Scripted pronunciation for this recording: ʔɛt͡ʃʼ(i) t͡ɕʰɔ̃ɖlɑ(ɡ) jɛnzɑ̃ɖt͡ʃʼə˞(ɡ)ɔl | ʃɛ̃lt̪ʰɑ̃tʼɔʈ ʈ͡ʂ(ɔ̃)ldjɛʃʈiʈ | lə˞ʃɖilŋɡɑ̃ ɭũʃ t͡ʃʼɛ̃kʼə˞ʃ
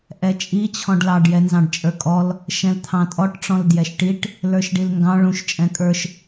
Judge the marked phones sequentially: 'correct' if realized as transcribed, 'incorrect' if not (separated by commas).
correct, incorrect, incorrect, correct